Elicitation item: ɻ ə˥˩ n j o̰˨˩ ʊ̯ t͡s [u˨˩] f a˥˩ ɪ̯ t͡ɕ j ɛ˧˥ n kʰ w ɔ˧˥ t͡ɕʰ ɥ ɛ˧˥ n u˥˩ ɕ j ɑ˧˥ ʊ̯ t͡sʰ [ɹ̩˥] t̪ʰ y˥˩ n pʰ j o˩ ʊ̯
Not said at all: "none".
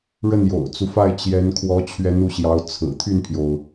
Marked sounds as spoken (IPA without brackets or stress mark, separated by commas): u˦, ɹ̩˨˩